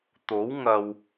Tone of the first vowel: rising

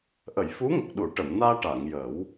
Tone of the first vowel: low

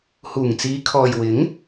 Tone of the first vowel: low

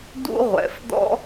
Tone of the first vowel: high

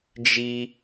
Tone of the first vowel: high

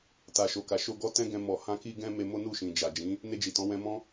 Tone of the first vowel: low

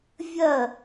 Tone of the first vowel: falling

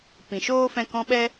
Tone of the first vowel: low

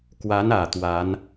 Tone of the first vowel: rising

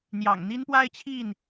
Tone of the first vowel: low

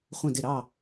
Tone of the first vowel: falling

